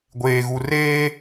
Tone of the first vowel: low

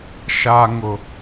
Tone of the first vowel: low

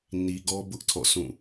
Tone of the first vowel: low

